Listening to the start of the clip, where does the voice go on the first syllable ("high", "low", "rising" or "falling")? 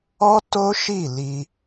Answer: high